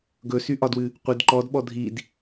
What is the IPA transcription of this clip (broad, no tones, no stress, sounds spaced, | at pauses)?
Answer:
ɡ ɵ s y ʔ ɒ d w ɨ | qʷ ɨ d ǃ ɔ d ɓ ɔ dʱ i d